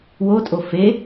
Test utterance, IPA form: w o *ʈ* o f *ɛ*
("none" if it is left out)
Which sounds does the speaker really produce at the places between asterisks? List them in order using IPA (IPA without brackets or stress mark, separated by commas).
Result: tʼ, e